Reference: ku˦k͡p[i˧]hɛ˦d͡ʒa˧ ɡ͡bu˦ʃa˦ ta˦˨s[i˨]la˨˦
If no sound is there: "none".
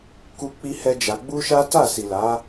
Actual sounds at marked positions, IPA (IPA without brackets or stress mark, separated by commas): i˦, i˨